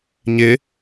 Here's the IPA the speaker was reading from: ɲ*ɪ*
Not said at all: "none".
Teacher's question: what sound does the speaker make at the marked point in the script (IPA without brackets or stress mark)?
ɪ